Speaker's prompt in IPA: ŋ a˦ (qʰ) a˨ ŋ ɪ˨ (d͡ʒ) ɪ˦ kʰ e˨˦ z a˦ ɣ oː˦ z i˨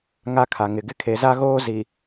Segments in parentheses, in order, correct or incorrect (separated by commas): incorrect, incorrect